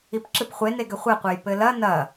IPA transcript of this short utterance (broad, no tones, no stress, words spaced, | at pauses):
ipǁɨpχʷe neɡɘχʷɛqʷɛj pɘlɐ nɐ